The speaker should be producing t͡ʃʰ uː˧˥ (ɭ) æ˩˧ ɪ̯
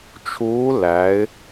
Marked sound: incorrect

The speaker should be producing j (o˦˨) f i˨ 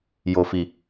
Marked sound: incorrect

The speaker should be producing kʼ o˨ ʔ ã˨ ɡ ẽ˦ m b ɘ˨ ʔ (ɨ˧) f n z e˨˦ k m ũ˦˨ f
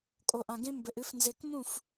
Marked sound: correct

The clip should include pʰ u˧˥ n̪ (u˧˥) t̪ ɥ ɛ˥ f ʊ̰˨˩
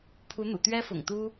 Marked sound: incorrect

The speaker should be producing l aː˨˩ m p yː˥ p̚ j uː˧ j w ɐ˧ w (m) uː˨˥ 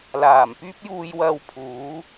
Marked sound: incorrect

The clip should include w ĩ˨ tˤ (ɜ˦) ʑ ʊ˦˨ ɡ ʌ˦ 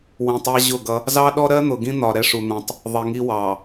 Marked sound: incorrect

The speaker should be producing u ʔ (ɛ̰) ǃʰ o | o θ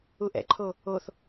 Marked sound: correct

